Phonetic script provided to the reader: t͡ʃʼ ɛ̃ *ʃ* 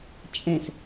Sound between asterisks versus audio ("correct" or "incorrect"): incorrect